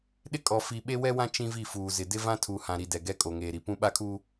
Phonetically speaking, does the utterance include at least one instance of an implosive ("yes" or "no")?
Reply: yes